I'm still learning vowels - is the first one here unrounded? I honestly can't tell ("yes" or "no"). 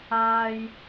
yes